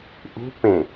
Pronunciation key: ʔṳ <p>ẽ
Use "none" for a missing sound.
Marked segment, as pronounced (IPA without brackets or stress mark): p